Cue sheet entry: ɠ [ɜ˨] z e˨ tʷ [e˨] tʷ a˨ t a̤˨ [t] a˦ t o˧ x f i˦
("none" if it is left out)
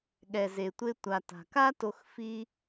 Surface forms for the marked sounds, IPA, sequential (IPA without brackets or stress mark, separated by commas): ɛ˨, e˧, k